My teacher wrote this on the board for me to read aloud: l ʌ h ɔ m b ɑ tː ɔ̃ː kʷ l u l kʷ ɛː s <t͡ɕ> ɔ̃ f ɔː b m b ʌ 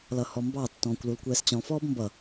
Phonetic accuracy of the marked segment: correct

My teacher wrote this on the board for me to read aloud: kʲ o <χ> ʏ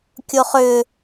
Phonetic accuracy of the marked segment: correct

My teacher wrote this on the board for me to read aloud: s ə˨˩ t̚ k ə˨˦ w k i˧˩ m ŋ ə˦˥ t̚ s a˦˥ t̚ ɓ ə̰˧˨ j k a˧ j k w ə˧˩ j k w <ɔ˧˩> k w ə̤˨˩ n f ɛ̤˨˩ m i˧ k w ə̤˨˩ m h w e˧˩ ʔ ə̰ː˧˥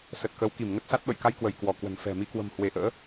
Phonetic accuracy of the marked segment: correct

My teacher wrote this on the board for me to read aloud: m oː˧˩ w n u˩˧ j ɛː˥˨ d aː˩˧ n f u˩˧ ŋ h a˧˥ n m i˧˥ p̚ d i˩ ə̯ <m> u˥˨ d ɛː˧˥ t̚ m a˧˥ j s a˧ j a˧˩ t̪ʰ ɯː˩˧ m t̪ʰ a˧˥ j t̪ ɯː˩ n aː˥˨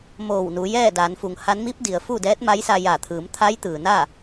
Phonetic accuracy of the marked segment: incorrect: f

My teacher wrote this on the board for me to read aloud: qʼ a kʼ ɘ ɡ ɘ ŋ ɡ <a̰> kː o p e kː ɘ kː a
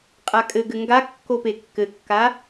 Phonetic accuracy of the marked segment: incorrect: a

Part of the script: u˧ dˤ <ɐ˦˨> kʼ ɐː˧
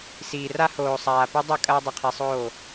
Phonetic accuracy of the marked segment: correct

